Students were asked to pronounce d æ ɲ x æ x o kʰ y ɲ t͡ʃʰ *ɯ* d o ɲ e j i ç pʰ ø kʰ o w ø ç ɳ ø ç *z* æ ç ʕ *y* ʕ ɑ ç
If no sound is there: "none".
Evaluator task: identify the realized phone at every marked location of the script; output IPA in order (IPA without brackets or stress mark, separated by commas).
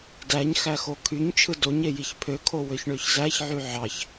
ɯ, z, y